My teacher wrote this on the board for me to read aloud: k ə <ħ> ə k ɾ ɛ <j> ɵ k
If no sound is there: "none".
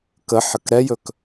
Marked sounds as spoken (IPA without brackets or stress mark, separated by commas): ħ, j